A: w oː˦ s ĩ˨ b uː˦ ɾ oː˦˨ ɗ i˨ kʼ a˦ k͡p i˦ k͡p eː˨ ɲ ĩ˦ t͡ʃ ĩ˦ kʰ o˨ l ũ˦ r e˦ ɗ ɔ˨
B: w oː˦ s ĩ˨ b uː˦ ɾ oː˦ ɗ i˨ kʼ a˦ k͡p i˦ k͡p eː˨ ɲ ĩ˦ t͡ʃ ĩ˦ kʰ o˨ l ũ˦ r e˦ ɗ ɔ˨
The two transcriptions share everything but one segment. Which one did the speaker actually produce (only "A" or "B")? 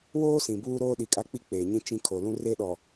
B